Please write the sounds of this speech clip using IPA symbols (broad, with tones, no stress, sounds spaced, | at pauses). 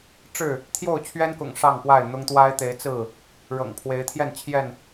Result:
ʈ͡ʂ ɻ̩˥˨ | t̪ʰ j o˥˨ ʊ̯ t͡ɕʰ ɥ ɛ˦ n k ʊ̰˨˩ ŋ ʂ ɑ˥˨ ŋ p w a˥˨ ɪ̯ n̪ ʊ˦ ŋ t̪ w a˦ ɪ̯ t̪ e˨˦ ɪ̯ t͡s ɹ̩˥˨ | ɻ ɤ̰˨˩ ŋ pʰ w e˨˦ ɪ̯ t̪ʰ j ɛ˥˨ n t͡ɕʰ j ɛ˥˨ n